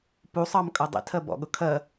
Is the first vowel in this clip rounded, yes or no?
yes